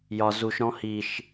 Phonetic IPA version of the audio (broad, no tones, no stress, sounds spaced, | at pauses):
j ɒ z u ʃ ɾ ɔ̃ h i ʃ